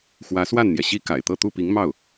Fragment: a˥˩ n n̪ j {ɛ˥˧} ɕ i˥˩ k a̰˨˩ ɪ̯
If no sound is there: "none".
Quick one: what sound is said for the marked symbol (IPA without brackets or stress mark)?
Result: ɛ˩